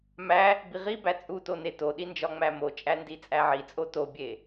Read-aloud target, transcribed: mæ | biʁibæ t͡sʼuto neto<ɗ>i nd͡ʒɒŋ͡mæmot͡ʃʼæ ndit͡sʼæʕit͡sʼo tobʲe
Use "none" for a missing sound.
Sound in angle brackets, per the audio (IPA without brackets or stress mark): ɗ